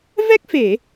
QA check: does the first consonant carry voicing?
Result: yes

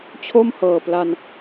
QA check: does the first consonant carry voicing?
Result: no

